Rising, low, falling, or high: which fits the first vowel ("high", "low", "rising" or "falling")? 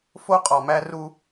high